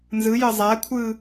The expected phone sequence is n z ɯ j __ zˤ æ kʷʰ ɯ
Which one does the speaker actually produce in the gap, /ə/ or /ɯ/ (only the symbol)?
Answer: ə